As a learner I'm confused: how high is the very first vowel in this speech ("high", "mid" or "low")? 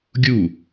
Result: high